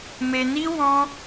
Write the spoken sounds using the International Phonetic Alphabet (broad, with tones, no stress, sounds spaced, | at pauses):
m e˧ n i˦ w ɔ̃˦